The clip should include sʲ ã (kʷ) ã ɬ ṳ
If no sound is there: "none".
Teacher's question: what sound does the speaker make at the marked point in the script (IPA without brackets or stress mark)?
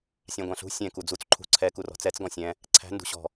ɡʷ